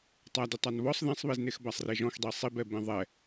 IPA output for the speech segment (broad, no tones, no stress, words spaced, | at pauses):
tˤadʊ tˤanβɔsˤ ðẽsˤβeznex basˤreʒɔ̃xdˤi sˤibɛ bẽðˤɛ